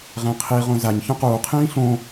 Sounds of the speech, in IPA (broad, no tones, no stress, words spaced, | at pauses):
ʁɛ̃qʰiʁõ zaɲ çõquːqʰĩː ɬõ